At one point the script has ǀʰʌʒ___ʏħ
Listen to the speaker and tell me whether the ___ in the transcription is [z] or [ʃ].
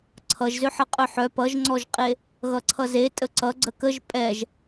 z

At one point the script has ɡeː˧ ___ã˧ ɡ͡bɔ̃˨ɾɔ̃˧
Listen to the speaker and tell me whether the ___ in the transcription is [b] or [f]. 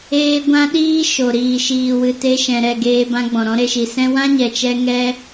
b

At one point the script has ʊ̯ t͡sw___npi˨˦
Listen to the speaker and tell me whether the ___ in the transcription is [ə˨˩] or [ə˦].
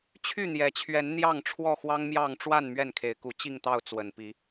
ə˨˩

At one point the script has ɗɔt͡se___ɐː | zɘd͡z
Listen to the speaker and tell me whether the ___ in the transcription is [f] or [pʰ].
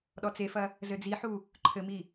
f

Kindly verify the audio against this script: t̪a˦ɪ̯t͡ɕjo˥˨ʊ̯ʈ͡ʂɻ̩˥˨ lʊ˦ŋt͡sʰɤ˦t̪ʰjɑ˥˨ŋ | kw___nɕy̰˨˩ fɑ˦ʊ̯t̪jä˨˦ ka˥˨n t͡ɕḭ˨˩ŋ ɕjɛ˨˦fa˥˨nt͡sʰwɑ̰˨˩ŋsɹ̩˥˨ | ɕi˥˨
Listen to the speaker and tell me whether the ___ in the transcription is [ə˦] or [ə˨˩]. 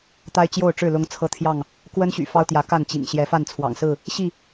ə˦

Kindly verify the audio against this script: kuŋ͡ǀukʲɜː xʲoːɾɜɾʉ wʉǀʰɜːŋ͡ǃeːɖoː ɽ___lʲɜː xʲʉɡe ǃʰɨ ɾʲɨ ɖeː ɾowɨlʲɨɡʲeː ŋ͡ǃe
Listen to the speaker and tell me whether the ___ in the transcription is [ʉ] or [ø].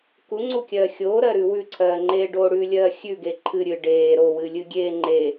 ʉ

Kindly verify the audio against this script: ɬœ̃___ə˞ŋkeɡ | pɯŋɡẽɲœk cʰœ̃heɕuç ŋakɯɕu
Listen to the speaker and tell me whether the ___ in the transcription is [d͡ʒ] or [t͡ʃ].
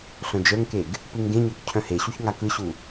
d͡ʒ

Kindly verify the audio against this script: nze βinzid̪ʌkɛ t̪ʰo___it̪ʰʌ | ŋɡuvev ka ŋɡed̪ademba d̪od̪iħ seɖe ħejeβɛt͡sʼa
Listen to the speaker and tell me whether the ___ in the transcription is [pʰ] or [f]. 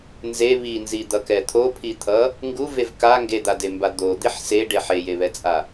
pʰ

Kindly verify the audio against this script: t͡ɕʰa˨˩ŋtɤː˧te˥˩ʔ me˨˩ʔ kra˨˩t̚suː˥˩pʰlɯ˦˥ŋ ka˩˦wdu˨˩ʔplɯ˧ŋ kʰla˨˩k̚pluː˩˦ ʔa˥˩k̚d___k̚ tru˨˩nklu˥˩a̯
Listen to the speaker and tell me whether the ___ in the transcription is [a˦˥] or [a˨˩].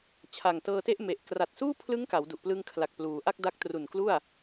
a˦˥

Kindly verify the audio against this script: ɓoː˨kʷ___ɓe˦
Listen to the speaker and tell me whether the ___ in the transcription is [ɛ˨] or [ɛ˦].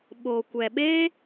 ɛ˨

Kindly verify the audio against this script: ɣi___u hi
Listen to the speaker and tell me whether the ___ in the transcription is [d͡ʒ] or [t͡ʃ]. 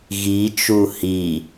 t͡ʃ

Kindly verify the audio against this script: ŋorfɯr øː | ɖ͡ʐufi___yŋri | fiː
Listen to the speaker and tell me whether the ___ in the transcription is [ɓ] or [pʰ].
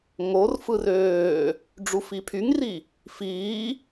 pʰ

